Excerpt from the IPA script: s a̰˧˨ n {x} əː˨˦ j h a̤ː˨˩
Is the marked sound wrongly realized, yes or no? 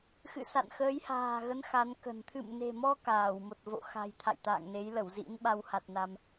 no